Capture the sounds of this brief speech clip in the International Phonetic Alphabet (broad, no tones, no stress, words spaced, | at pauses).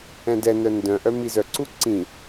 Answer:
ɛ̃dɛnœ ndœ̃ʔœ mizœǀu ǀĩ